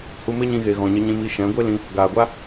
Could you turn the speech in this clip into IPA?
h u˧ m e˦ ɲ ĩ˧ ɣ e˨ ɣ ɔ̃˨ ɲ ə˧ ɲ ĩ˧ m i˧ ʃ ɛ̃˨˦ ɡʷ e˦ l ĩ˧ | ɡ aː˨ ɡʷ a˦

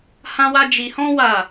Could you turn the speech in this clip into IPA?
h ã˦ w a˦ d͡ʒ i˧ h ɔ̃˦ w a˦˨

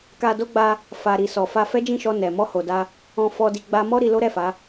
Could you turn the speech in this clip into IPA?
k a˧ d o˧ ɡ͡b a˧ | f a˨ ɾ i˨ s ɔ˨ f a˧ f ɛ˦ d͡ʒ ĩ˦˨ ʃ ɔ˧ n ɛ˨ m ɔ˧ h o˨ d a˧ | ɔ̃˨ f ɔ˨ d i˨ ɡ͡b a˧ m ɔ˦ ɾ i˧ l o˦ ɾ ɛ˦˨ f a˨˦

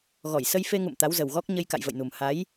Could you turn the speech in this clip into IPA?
ɣ ɔ˧˩ j s ə˧ j f e˧ ŋ ṵ˧˨ m t̪ a˨˦ w z ə˨˩ w ɣ ɔ˦˥ k̚ ɲ ə˧ j k a̰˧˨ j v ə̰˧˨ j n u˨˩ m h a˨˦ j

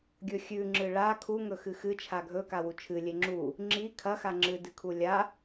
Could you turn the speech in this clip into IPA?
ɡʲ ɵ xʲ ʉ ŋ͡ǁ ɨ ɭ a kʰ u ŋ ɵ x ɨ x ɨ t͡ʃʰ a ɡʱ ɵ k a w u t͡ʃʰ ɨ lʲ e ŋ͡ǁ u | ŋ͡ǁ i kʰ ɐ x a ŋ͡ǁ ɨ d ɨ kʰ u lʲ a

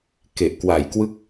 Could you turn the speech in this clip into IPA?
k e˨˩ ʔ k w a˨˩ j k w ɯ˥˩ k̚

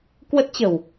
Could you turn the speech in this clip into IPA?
k w ə˦˥ t̚ t͡ɕ ə̤˨˩ w

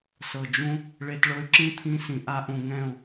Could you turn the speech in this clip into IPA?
s ɤ˨ d͡ʒ ũ˦ | ɭ e˧ t ɭ ɤ˧ y̯ ǁ ĩ˦ t̪ʰ ĩ˧ s ĩ˨ ʔ a˧ ʔ ũ˨ ŋ ɛ̃˦˨ u̯

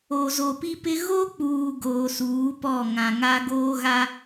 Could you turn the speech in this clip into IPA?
o˨ z o˨ p i˦ p ɪ˦ ɣ o˦ k͡p uː˨ ɡ oː˨ s uː˨˦ p ɔ˦˨ ŋ ã˨ ŋ a˦ ɡ oː˦ ɣ a˦

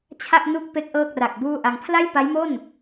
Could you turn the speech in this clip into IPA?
t͡ɕʰ a˥˩ ʔ n u˥˩ k̚ p e˦˥ k̚ ʔ ɤː˥˩ k̚ r a˨˩ k̚ b uː˥˩ ʔ a˧ ŋ pʰ l a˥˩ j p a˦˥ j m o˥˩ n

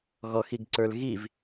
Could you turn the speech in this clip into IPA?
ɣ ɔ x i ɡ ǀ ə˞ l ɣ i v

